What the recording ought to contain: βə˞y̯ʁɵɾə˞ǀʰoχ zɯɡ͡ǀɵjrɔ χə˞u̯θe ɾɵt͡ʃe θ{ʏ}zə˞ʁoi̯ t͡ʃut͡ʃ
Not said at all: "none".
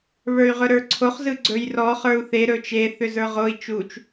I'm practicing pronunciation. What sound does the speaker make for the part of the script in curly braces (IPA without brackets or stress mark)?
ʏ